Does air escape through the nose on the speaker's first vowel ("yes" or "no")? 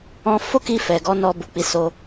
yes